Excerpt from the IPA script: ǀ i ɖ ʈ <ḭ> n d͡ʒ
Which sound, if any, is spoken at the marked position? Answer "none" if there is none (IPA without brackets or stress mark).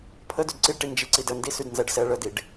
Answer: i